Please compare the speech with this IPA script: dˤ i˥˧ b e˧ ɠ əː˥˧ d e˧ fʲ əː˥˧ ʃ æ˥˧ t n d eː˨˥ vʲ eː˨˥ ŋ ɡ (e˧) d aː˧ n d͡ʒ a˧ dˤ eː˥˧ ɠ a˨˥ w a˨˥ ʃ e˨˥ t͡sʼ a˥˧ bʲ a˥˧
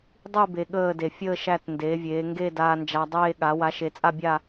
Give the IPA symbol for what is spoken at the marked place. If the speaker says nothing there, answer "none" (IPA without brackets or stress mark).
e˥˧